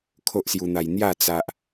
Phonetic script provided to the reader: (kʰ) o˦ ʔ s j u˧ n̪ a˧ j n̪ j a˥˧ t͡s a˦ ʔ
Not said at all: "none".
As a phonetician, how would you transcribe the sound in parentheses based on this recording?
kʰ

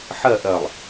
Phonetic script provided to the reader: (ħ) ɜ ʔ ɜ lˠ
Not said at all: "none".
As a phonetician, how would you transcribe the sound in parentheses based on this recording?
ħ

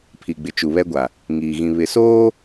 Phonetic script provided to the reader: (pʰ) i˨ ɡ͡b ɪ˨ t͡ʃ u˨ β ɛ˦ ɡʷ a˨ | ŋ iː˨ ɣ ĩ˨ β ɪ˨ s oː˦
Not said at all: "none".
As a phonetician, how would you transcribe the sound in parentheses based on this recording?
pʰ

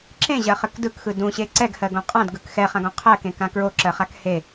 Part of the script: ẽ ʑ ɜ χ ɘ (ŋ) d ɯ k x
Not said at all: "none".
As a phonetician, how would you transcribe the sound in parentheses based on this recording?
k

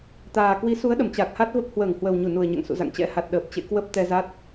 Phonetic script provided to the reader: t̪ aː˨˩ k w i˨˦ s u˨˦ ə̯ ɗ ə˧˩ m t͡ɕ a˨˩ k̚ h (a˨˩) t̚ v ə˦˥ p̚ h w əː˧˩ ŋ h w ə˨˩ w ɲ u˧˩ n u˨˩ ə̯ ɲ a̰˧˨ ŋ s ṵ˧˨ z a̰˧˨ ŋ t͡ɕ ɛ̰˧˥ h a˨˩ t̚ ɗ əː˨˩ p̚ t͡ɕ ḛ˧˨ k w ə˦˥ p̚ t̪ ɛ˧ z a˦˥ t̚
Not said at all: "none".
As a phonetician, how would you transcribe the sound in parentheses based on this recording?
a˦˥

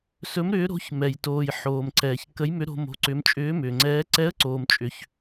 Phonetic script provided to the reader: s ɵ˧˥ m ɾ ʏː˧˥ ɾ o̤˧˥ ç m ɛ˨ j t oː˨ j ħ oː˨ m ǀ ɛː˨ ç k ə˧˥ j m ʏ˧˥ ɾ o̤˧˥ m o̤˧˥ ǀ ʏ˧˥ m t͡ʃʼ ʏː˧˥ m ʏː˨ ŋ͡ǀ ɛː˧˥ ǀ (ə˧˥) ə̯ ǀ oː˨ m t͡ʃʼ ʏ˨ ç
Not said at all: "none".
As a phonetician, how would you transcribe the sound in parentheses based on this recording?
ɛ˧˥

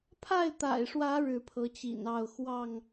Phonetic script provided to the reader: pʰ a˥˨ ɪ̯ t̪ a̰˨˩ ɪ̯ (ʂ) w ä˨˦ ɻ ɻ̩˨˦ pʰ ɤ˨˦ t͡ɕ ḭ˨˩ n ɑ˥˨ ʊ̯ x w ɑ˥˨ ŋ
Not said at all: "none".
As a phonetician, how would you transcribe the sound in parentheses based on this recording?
ʂ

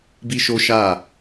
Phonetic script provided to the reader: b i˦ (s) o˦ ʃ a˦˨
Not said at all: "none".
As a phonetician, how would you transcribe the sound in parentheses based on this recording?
ʃ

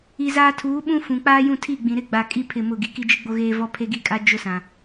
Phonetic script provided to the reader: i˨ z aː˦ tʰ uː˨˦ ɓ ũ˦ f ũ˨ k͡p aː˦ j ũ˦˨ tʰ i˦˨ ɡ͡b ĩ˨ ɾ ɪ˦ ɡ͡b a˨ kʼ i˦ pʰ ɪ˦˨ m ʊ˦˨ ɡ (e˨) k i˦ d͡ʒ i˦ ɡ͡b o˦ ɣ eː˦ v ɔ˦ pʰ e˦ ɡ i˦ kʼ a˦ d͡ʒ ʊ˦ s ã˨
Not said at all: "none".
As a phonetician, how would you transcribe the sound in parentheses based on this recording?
i˨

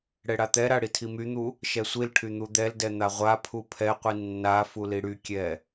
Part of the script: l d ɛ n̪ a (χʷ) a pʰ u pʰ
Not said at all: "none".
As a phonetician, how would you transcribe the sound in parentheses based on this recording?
ʁʷ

